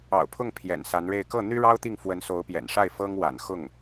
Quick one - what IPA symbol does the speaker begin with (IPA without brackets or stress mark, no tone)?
ɑ̰